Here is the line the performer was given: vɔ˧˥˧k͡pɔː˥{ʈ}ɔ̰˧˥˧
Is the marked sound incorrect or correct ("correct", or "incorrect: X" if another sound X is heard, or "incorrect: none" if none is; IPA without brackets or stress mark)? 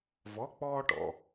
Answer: correct